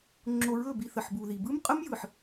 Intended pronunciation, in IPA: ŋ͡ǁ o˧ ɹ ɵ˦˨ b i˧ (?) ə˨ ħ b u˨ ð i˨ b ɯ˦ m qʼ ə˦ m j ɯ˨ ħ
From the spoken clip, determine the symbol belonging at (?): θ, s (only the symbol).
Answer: θ